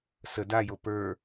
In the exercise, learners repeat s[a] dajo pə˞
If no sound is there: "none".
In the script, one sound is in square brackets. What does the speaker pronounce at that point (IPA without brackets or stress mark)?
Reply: ə